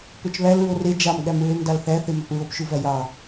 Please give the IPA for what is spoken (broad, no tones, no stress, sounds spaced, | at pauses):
p ø t͡ʃ β æ l ɹ o r e d͡ʒ ɑ m ɠ æ m ɹ ø m d ɑ l θ æ θ e m ɑ p ɹ o p ʃ u v æ j ɑ